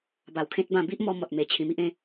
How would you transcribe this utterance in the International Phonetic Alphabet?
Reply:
b a˨˩ w kʰ ẽ˦ t̚ b ã˥˧ b i˦ ʔ m ɔ˧ m ɔ˨ t̚ m e˨˩ t͡ɕʰ ĩ˨˩ m i˦ ʔ ẽ˥˧

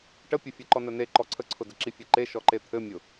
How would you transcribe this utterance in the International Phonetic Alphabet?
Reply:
ʈ ə pʲ ɘ fʲ ɘ ǃ ɔ n ə n e ǃ ɔ ǀʰ ə ǀʰ ʊ d ə ǁ i fʲ e ǃ e ʃ ɔ ǃ e t̪ʰ ɘ mʲ ʊ

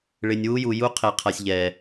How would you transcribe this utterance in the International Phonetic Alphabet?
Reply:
ɭ ɪ˨ nʲ w u˦ j u˨ j u˦ qʰ e˨ qʰ a˨ sʲ ʎ ɛ˨

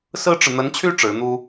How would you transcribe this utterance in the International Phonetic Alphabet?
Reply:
s ɹ̩˥ ʈ͡ʂ ɻ̩˨ n̪ ə˧˥ n t͡ɕʰ y˥ ʈ͡ʂ ɻ̩˧˥ n̪ u˥

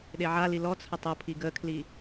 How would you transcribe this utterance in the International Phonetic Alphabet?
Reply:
ɗ e ʕ a l i l ɔ t͡sʰ ə tˤ o pʰ i ɡ ə kʰ l i

